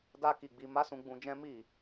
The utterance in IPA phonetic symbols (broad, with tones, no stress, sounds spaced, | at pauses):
d a˦ k i˧ ɡ͡b i˧ m a˦ s ũ˧ ɡ͡b ũ˧ d͡ʒ ɛ̃˦ m i˦˨